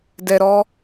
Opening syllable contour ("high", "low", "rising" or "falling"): low